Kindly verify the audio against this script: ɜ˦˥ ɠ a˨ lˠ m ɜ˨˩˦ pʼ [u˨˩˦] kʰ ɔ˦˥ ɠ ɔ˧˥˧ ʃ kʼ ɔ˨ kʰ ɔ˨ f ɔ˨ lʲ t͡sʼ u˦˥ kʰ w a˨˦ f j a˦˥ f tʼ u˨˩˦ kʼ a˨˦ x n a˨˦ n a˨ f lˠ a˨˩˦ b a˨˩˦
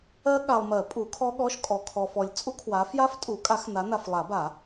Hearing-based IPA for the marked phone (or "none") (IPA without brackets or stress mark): u˨˩˦